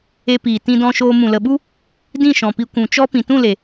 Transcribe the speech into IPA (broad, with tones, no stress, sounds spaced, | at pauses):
e˧ p iː˨ t ĩ˧ d ɔ̃˧ ʃ oː˧ m ũ˨ l ə˨ ɓ u˦ | d ĩ˦˨ ʃ ɔ̃˨ p i˧ kʷ ũ˨ t͡ʃ ɔ˦ p ĩ˨ t ũ˦˨ l e˨